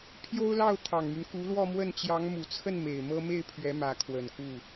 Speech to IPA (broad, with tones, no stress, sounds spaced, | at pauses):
pʰ j o˥ ʊ̯ l ɑ˥˩ ʊ̯ t̪ʰ ɑ˨˩ ŋ m y˦ n k u˧˥ l w ɔ˥˧ m w ə˥˩ n t͡ɕ j ɑ˧˥ ŋ m u˨˩ t͡sʰ ə˥˩ n m e˨˩ ɪ̯ m ɤ˥ m e˥˩ ɪ̯ pʰ ɥ ɛ˧˥ m ä˧˥ kʰ w ə˨˩ n k u˥˩